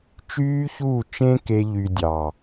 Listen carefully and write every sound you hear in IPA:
t͡ʃ yː˦ ç uː˦˨ t͡ʃ ẽ˦ k e˦ ʎ y˧ dʲ ɑ˨

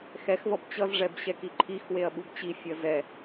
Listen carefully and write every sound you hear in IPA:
x ɛ x v ʌ b t͡ɕ ʌ z ʐ ɛ b ɕ ɛ k i ǃʰ i x w e ɐ̯ ɓ u b t͡ɕ i fʲ ʌ z ɛ

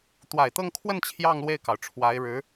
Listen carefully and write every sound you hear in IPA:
t̪ w a˨˩ ɪ̯ t̪ ɤ˥˧ ŋ kʰ w ə˥˧ n t͡ɕʰ j ɑ˥˧ ŋ l w e˥˩ ɪ̯ k ɑ˩ ʊ̯ ʈ͡ʂʰ w a˧˥ ɪ̯ ɻ ɻ̩˧˥

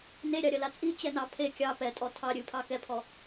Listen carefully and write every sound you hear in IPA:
n e ɾʲ ɑ ɾʲ ɐ l a t͡sʼ i t͡ɕ ɛ n ɑ pʰ e kʲ ɑ p ɛ tʼ ɔ tʰ ɑ ɾʲ ɨ pʰ ɑ k ɛ pʰ ɔ

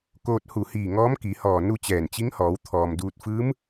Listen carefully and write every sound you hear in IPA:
k oː˧ t̚ h u˧˩ h iː˧˩ ŋ ɔː˧˥ m k i˩˧ h ɔː˧˩ n u˥˨ t͡ɕ ɛː˧˩ n t͡ɕ i˧˥ ŋ h ɔː˩˧ w t̪ʰ ɔː˩ m d uː˧ t̚ f ɯː˧˥ m

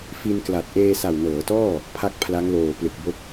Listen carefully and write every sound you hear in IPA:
f i˧ n k l a˨˩ t̚ ʔ eː˧ s a˨˩ w n ɤː˩˦ t ɔː˥˩ | pʰ a˥˩ k̚ pʰ l a˦˥ ŋ l oː˨˩ p l ɯ˨˩ k̚ b o˦˥ k̚

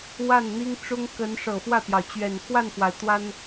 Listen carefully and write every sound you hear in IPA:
w a˥˩ n n̪ i˥ ŋ ʈ͡ʂ ʊ˥ ŋ k ə˧˥ n ʂ ɤ˨˩ f w ä˥˩ t̪ j ɑ˩ ʊ̯ t͡ɕ ɥ ɛ˨˩ n x w a˥˩ n f w a˩ ɪ̯ t̪ w a˥ n

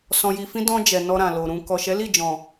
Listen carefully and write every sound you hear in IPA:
s ɔ̃˨ j i˨ f ĩ˧ d ɔ̃˧ d͡ʒ ɛ˨ n ɔ˧ ɾ ã˨ l o˨ ɾ ũ˨ k ɔ˨ ʃ ɛ˨˦ l i˦˨ d͡ʒ ɔ̃˨

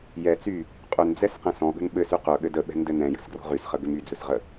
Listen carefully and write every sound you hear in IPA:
j ɛ t͡s y | qʼ ʏ n d͡z ɛ s q ɛ̃ s ɔ̃ ɠ ə̤ n ɓ ɘ s y q ɵ ɠ ɘ d ə ɓ ɛ̤ n d ɘ n ɛ̃ j ə̤ s ɡ r ɔ̤ ʁ y s χ ə ɡ ʏ m y d͡z ɵ s ʁ ə

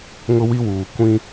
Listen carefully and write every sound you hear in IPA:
ŋ ʊ˦ w i˦ w uː˨ kʷ ĩ˦

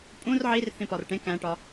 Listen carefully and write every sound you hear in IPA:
pʼ ũ r ʕ i r θ ĩ p ɒ r ʈ ẽ k æ̃ ʈ ɒ

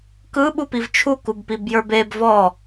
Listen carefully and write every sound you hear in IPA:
k ɯ ɓ u p i v t͡ʃʰ u k u b p i b j ə˞ b e b v ɔ

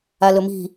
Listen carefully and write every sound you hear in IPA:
a l ɵ m i̤

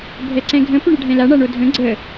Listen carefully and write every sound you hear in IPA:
bʱ ɛ ǀ ɛ̃ ɡʱ ə̃ p ʏ ɳ ɘ ɖʱ ɛ̃ l a ɳ a ɳ o dʱ ə̃ ɡ͡ǀ ə

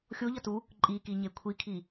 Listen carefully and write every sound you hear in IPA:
xʲ o ʎ ʌ t u | ǃʼ i k i ɲ e kʷʰ i kʰ i

